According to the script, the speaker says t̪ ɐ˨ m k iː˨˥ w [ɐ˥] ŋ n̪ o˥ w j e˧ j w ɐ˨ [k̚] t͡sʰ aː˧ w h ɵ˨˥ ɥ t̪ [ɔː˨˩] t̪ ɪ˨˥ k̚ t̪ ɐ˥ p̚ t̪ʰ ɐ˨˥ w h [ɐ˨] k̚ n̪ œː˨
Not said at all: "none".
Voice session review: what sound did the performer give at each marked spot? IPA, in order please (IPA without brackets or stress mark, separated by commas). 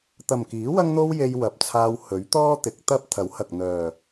ɐ˥, p̚, ɔː˥, ɐ˨